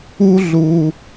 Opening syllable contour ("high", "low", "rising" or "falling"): high